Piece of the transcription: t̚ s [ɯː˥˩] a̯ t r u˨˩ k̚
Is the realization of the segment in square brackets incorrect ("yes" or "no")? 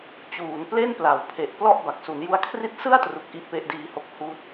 yes